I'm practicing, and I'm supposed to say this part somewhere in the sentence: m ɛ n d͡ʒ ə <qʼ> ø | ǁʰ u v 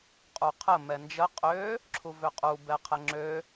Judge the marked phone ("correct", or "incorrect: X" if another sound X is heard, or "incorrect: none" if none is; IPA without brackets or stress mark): correct